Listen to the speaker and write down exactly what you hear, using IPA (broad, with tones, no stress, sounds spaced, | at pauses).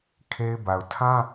kʰ e˦ ɪ̯ b a˨ ʊ̯ tʰ ã˦